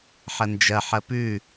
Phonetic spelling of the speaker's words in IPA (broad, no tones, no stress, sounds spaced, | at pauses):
ħ ɐ n d͡ʒ ɐ ħ ɐ p ʉ